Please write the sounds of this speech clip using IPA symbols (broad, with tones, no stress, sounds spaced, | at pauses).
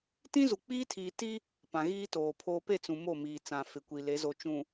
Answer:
t ĩ˦ z u˨ k͡p iː˦ tʰ iː˨ t i˦ | p ã˨ ɣ iː˦ t oː˨ pʰ oː˦ p e˦˨ t͡s ũ˨ m o˦˨ m iː˨ t͡s ã˨ f ɪ˨ kʷ i˨ l e˨˦ z o˨ t͡ʃ ũ˨